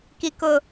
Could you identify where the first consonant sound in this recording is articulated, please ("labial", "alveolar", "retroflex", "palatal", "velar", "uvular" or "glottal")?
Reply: velar